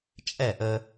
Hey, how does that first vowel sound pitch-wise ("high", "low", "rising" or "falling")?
falling